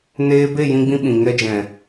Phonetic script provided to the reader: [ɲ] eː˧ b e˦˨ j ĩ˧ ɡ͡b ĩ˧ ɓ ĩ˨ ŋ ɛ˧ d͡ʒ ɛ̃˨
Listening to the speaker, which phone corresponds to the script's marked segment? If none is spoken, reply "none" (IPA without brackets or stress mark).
n